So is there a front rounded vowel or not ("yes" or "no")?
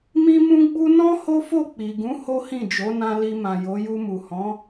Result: no